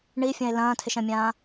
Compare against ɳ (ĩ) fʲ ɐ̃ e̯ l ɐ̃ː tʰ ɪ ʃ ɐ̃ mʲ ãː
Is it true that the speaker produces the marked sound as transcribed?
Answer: no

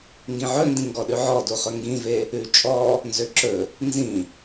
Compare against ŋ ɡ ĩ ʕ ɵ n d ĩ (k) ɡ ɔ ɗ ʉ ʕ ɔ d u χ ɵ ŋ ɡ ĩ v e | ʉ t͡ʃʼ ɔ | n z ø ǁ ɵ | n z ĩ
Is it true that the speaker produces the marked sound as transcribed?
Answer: no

